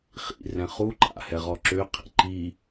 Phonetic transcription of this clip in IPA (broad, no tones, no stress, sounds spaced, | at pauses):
χ ḭ r ɛ̃ χ u ǃ a̰ h ɛ ʁ ɔ ǁ ø qʰ ḭ ǃ i